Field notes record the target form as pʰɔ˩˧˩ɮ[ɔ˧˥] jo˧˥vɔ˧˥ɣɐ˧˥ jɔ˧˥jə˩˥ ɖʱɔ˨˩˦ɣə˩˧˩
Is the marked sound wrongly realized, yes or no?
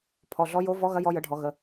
no